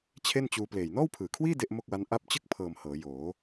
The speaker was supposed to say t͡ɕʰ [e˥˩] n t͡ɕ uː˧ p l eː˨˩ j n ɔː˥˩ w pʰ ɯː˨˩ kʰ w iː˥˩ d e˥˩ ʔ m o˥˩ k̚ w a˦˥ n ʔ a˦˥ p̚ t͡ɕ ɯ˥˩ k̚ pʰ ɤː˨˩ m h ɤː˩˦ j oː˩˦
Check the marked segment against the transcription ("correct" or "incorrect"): correct